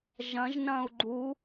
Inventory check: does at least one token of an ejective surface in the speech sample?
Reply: no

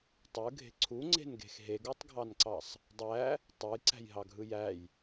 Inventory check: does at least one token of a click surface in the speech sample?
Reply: yes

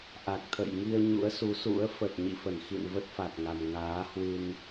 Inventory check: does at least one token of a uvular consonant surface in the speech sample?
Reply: no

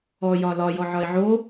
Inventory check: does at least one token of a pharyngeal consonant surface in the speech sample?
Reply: yes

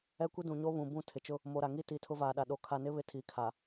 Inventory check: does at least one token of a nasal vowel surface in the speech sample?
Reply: yes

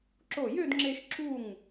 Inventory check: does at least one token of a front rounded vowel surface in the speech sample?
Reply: yes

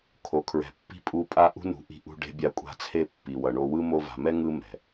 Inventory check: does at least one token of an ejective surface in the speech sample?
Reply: yes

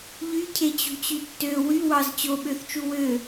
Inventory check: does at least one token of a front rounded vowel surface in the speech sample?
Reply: yes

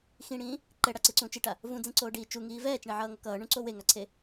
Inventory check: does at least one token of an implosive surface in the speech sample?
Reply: no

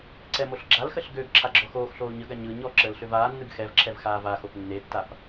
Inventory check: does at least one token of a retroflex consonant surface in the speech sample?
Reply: no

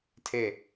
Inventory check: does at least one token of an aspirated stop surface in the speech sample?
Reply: yes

